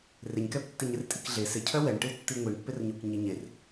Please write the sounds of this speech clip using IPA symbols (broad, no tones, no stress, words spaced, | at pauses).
rɪɲkɛp tːiɲɪrtʼikɮe sɪcʰœ wɛɳʈɪw tːiŋʷiɳpːɪrɲuk ɲiɲer